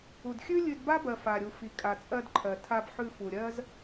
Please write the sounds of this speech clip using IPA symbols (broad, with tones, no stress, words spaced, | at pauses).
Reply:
u˨dxʲʉ˦ lʲʉ˧dba˦bɜ˨ fa˨ɾʲu˨ fi˨kʼa˨t͡sʼɜ˧dǃʰɜ˨ tʰa˧b ħʉ˧ fu˨ɾʲɜ˦z